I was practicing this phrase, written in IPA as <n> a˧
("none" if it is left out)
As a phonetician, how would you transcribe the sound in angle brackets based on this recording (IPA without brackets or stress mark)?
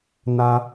n